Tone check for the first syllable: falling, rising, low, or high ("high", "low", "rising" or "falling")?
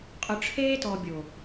low